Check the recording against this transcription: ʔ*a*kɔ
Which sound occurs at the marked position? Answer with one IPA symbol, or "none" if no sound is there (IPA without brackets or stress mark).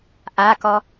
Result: a